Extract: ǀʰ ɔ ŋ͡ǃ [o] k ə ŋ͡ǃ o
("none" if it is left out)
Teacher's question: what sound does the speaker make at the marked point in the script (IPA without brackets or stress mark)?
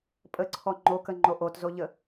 o